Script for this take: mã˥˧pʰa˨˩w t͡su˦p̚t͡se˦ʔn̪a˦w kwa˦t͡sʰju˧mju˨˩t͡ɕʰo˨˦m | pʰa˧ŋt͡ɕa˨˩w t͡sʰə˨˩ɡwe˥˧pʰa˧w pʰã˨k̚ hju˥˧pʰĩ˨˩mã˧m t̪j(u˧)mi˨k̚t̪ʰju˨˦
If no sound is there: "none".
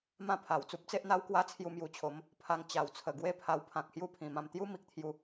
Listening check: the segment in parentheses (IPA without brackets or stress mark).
u˦